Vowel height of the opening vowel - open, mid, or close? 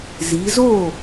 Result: close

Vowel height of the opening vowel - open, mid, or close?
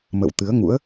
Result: mid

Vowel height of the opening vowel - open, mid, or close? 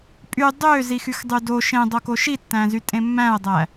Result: close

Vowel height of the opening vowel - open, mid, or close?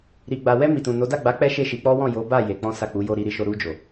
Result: close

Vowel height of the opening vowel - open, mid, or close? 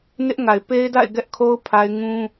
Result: close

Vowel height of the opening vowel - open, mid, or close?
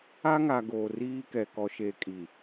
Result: open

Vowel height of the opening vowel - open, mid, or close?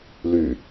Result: close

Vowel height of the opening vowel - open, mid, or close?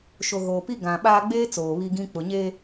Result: mid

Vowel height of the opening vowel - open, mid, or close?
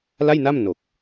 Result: open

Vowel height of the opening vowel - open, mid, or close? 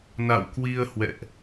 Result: open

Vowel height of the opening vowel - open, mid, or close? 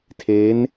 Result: mid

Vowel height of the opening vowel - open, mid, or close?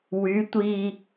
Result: close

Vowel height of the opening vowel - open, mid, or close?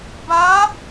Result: open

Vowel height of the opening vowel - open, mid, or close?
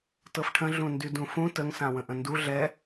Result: mid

